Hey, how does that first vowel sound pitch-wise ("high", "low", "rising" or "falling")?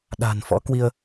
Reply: low